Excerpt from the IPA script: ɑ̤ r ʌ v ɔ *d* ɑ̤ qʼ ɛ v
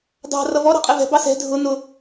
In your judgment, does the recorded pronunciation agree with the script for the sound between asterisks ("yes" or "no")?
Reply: no